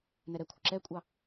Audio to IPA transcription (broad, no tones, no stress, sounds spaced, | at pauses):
n ɛ ɾ ɛ kʷʰ ɪ ǁ ɛ kʷʼ ɑ